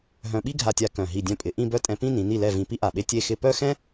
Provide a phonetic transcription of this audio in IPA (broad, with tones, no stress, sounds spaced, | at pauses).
ɦ œ̃˧ ɓ i˥ ɡʱ a˧ tʲ a˧ k œ̃˧˩ ɦ i˧˩ dʲ œ̃˧ pʼ ɪ˩˧ ʔ ĩ˥˧ b œ˥˧ tʼ ɛ̃˧ p ĩ˥˧ n ĩ˩˧ n i˧˩ l ɛ˧˩ v ĩ˧ p i˥ ʔ a˧˩ ɓ e˥ tʲ e˥˧ x ɪ˥˧ p œ˥˧ x ɛ̃˥